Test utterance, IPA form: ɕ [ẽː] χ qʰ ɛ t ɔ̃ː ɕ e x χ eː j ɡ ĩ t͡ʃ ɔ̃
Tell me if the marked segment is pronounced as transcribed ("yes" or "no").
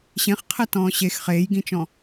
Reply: no